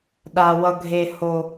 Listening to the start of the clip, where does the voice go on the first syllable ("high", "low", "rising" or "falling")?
low